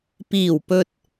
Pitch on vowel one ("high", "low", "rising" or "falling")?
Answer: low